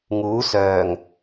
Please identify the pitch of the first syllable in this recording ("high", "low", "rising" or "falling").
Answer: rising